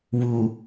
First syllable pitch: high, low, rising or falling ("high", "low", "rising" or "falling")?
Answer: low